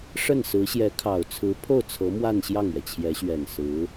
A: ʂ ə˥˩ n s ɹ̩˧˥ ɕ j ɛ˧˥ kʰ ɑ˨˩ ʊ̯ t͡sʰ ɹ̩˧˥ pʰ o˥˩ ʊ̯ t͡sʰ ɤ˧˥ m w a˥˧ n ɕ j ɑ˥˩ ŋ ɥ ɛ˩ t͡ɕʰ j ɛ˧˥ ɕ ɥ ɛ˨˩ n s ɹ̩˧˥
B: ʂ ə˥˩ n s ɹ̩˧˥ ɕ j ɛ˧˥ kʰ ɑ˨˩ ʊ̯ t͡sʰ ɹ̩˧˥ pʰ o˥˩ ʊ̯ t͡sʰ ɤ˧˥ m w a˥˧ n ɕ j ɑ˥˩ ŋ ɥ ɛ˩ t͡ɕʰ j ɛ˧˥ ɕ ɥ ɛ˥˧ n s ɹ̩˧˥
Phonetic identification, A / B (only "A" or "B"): A